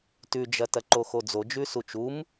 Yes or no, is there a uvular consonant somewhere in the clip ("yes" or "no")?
no